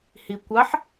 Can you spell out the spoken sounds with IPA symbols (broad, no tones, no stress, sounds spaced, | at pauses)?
h i kʷ ɑ ħ